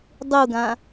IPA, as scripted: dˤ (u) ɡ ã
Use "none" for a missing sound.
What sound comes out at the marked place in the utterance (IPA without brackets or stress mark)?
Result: u